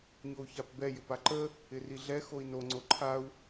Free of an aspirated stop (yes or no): no